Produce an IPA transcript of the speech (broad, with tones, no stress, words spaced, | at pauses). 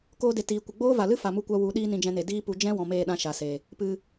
koː˧de˨ tiː˨ kʷə˨ɡ͡boː˦va˨ lɨ˦ fa˨mu˧kʷa˧ wu˨˦ ɗiː˦nĩ˧d͡ʒɛ̃˧ne˨ diː˦pu˧ d͡ʒɛ̃˦ wɔ̃˨meː˦˨ɗã˧ ʃa˨se˨ | pɨ˨